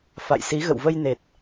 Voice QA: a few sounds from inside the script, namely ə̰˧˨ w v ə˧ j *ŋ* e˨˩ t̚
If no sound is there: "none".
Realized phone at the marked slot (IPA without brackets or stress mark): n